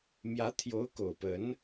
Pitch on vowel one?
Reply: rising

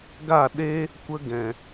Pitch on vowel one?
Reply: falling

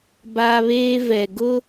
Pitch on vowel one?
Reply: high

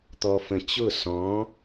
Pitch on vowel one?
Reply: low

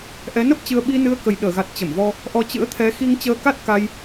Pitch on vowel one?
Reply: rising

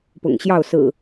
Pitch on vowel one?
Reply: low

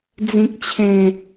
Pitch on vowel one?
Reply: low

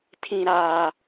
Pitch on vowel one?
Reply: high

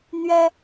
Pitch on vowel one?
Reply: high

